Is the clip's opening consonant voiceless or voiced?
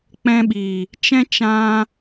voiceless